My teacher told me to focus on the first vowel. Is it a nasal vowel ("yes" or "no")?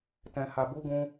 yes